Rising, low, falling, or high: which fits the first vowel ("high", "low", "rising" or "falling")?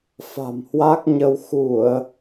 low